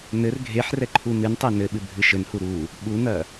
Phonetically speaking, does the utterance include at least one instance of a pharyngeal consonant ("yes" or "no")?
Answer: yes